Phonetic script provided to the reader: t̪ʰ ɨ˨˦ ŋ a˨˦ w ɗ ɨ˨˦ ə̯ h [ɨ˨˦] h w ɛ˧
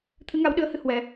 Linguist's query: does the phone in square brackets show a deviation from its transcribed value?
no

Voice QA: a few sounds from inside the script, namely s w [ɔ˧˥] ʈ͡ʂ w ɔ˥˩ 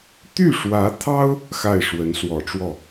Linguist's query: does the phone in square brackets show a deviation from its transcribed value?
yes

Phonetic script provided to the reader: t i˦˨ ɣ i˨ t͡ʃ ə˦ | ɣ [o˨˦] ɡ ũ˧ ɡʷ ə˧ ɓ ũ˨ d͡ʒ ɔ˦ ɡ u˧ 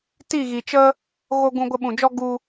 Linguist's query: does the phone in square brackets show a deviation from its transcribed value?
yes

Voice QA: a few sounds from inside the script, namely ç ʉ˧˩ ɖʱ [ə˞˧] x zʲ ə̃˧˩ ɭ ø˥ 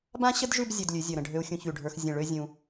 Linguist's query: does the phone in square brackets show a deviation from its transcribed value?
no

